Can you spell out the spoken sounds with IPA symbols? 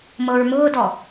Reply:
m ɤ ɹ m ʊː d ɔ

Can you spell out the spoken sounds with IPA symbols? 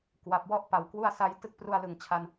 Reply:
k w a˨˩ p̚ w ɔ˥˩ ʔ p a˨˩ w k w u˥˩ a̯ s a˦˥ j t ɯ˦˥ k̚ p r u˧ a̯ l ɯ˨˩ ŋ t͡ɕʰ a˧ n

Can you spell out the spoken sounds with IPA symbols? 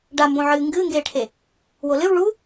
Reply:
ɖ a m b õ ʕ ɨː ŋ ɡ ɨː ŋ ɡ eː ʈʰ e | w o l ɨ w ɭ u

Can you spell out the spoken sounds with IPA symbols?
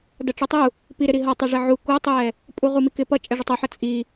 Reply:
d ʌ ʈ͡ʂ i tˤ u | p i ɾ ɪ ɾ i ɦ ʌ tˤ ʌ ʐ ɪ ʕ u k u tˤ i j ɛ | pʼ u ʁ u m i k ɪ p ʌ t͡ʃʼ ɛ ʐ ʊ tˤ u ħ ʌ t͡sʼ i

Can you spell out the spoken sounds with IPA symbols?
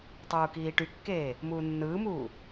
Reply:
tˤ uː k iː ʈ y kː eː | m uː nː ɯː m uː

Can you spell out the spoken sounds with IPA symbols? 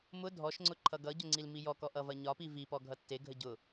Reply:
m ʊ dʱ ɔ ʃ ŋ͡ǀ ʊ ǃʰ ʌ ɡ ʌ ɟ ʊ ŋ͡ǀ i l m i j ɔ k ɔ ʔ ʌ v ɐ ɲ ɒ p i v i p ɔ ɡʱ ʌ tː e ɡʱ ə ɟ ʊ

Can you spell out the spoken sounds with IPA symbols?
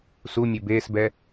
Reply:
s u mʲ e b eː s b ɛ

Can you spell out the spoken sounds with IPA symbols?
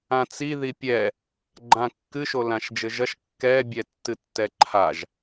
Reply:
ã t͡s i ð i pʲ ɛ | ɡ͡ǃ ã kː ɨ ʃ o l ã ʃ d͡ʒ ɘ ʒ ɐ ʃ kː ɛ bʲ ɛ tː ɨ tː ɛ ǃʰ a ʒ

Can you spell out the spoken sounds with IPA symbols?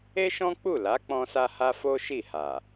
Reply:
e˦ ʃ ɔ̃˦ k͡p u˦˨ l a˨˦ k͡p ɔ̃˧ s a˧ h a˦ f o˦ ʃ i˦˨ h a˨

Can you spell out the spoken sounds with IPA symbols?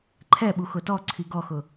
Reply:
ǃʰ ɛ ɓ u x ʊ t ɔ ǀʰ i ɡ ɔ x ʊ

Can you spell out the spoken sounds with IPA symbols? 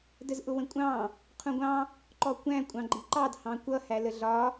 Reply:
d ə z ʔ ʊ w ə̃ kʷʼ ɑ̃ | qʰ ũ ɡʷ ɑ̃ | ǃ ɔ kʷ æ̃ kʷʼ ɑ̃ ɡ͡ǃ i ǃ ɑ d h ɑ̃ kʷ ʌ h æ l ə ɮ ɒ

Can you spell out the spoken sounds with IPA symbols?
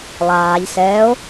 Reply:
lˠ aː ʎ s ɛː o̯

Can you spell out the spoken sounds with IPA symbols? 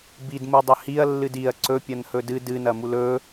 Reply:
b i d m u dˤ ɵ h i ɐ̯ lː ɨ d i ɐ̯ ǀ ɵ pʲ ɐ n h ɵ d ɨ d ɨ n ɐ m u l ɵ

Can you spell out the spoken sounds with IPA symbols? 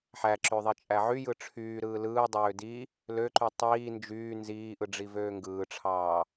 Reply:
ħ æ ǁ ø ðˤ i t͡ʃʼ æ ʕ y j ɯ ʈ͡ʂʰ yː ɾ ɯː l ɯː dˤ øː d i | l ø ǃ y tˤ iː n d͡ʒ yː n z iː ʔ ɯ ɖ͡ʐ i v øː ŋ ɡ ɯː ʈ͡ʂʰ ɑː

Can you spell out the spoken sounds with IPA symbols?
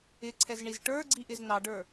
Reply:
ɪ ǀʰ ɛ z ɳ i z ʈ ə˞ ɡ͡ǀ i ʔ ɪ z n ɑ ɖ ə˞

